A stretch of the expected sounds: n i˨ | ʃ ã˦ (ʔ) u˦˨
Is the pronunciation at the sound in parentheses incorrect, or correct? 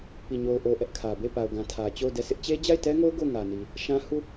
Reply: incorrect